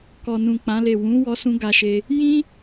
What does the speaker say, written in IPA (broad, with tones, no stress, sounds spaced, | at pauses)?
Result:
k ɔ˨ n ũ˨ k͡p ã˨˦ l e˦˨ w ũ˨˦ w ɔ˦ s ũ˦ ɡ a˧ ʃ e˧ | j ĩ˦